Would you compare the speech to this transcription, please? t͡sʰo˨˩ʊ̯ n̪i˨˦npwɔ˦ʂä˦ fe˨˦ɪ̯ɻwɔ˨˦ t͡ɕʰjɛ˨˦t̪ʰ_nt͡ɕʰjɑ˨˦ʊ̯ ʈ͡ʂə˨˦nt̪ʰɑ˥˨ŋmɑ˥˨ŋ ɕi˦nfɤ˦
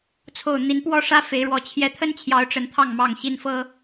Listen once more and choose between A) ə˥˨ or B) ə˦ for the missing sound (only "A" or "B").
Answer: B